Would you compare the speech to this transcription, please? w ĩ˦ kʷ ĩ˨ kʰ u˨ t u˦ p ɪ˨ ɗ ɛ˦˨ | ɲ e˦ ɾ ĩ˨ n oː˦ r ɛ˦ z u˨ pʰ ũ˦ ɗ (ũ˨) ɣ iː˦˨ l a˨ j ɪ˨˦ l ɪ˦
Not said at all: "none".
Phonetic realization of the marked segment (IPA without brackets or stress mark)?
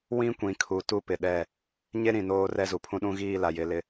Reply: ũ˦